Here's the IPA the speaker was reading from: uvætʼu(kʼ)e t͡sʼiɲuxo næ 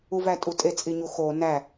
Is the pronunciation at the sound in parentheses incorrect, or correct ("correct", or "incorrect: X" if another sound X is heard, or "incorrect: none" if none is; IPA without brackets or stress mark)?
incorrect: tʼ